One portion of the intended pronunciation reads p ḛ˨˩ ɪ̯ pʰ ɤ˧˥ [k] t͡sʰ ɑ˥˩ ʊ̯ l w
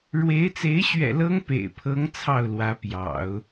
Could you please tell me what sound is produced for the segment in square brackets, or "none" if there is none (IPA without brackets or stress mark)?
ŋ